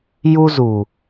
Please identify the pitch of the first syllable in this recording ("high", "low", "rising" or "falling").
high